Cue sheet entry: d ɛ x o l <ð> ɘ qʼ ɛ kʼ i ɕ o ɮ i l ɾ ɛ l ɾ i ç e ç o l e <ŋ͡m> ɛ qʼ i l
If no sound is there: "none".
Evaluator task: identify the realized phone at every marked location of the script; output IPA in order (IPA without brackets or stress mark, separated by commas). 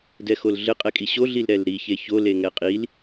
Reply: ɮ, ŋ